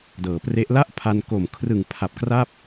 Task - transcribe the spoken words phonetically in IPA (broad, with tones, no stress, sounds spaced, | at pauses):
d ɤː˩˦ p r e˦˥ ʔ l a˥˩ ʔ pʰ a˧ n k o˨˩ m kʰ r ɯ˨˩ ŋ pʰ a˨˩ p̚ k r a˥˩ p̚